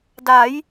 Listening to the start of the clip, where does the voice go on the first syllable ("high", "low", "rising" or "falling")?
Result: rising